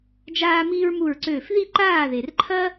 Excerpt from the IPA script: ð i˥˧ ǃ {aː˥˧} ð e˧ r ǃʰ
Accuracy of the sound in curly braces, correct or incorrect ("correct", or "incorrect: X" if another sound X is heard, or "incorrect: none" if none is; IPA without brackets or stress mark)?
correct